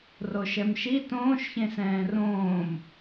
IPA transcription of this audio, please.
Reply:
r o ʃ ɛ m ʃ i t õː ʃ ç ẽ s ɛ̃ː r õː m

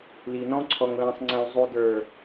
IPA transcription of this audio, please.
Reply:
l i˨ n ɔ̃˧ ǀʰ ɔ˨ ŋ l ɛ̃˨ sˤ ŋ͡ǀ ɛ̃˨ w zˤ u˨ d ə˞˨

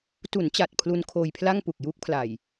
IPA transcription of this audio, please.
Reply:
t u˩˦ n t͡ɕ a˨˩ t̚ pʰ l u˧ n kʰ oː˧ j pʰ l a˥˩ ŋ p u˨˩ k̚ j uː˦˥ k̚ pʰ l a˨˩ j

